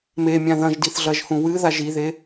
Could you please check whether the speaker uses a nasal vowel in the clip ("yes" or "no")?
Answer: yes